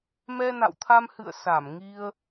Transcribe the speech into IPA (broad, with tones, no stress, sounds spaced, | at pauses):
m ɛ˧ n a̰˧˨ w t̪ʰ a˧ m h ɨ̰˧˨ ə̯ s a˧˩ m ŋ i˧ ə̯